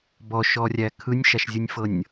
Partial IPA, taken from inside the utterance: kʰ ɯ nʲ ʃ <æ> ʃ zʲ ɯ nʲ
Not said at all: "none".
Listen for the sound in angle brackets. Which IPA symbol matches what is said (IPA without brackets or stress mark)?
a